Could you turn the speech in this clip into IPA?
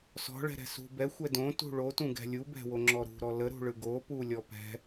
s ɔ̤ ɭ ɛ̤ ɾ ɛ̤ s ṳ b ɛ xʷ ɛ d õ t ṳ ɭ o t ũ ɡ ɛ̤ lʲ u b ɛ̤ w o ŋ͡ǁ ɔ ɾ ṳ ɾ ɔ l ə ɾ ṳ ɭ ɯ ɡ o p u lʲ ɔ p ɛ̤

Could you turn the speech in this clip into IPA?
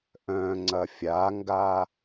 ʔ œ̃ ŋ͡ǀ ɐ fʲ a ŋ ɡ a

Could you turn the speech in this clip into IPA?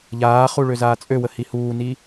ʎ aː χ u ɭ ø z aː t͡sʼ ø w ə h i h uː n i

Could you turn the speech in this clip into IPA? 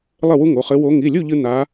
lˠ ɘ˥˨ w u˥ ŋ o˩˧˩ χ ɘ˧˥ w o˧˥ ŋ i˩˧˩ lʲ u˥˨ ʎ ɨ˥ n̪ a˧˥

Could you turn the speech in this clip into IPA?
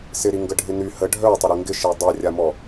s ɪ ɾ i ŋ ɡ ə ɖʱ ɪ n y h ə ɖʱ œ tˤ ɪ ɾ e ŋ ɡ ɪ ʃ i dˤ ɛ rʲ a m ɔ

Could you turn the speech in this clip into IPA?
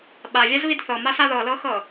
ɓ a vʲ a z β i d θ ɤ m a s a ð ɤ l ɤ x ɤ

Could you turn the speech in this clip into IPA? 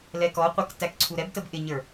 l ɛ k ɔ qʷ ɛ k t æ k ǀʰ u ɾ ɛ b t ə b ʔ ɪ ɲ ə˞

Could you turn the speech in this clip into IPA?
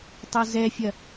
tˤ o z ɛ fʲ ɐ

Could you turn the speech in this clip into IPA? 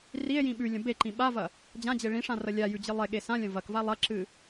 r i e̯ j ĩ ɓ ʉ lʲ ɐ̃ b e ǃ ĩ ɓ a v ɐ | d͡ʑ ã d͡ʑ e ɭ ĩ ʂ ã r ɐ lʲ a j ʉ d͡ʑ ɨ lˠ e ɠ e s ã lʲ ɐ̃ v ɐ k v a lˠ ɐ ǁ ɨ

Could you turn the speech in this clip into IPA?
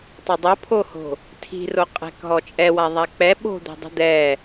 tˤ a dˤ o pʰ o h o̤ | tʰ i̤ r o qʼ ɛ̤ k ɦ ɔ t͡ʃʼ ɛ w a ðˤ a k͡p ɛ ɓ o̤ d̪ e̤ dˤ i̤ d̪ ɛ

